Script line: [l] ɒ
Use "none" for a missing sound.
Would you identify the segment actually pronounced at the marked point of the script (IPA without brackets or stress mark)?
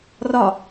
r